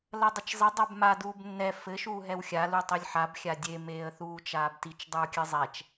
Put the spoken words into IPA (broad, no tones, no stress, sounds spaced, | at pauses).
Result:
l ɐ dˤ ɘ t͡ʃ zˤ ɘ dˤ a b m a d uː b nː ɛ f ɘ ʃ uː ɦ ɛ w xʲ a l u tˤ i lʲ ħ a b xʲ a dʲ e m eː ə̯ θ uː t͡ʃ aː b t i t͡ʃ dˤ uː kʲ ɨ zˤ ɛ t͡ʃ